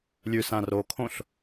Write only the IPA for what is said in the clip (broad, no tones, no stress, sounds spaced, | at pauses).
lʲ ʉ s ã r o kʰ õ ɬ